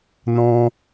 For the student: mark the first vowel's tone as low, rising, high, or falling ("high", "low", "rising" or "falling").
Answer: high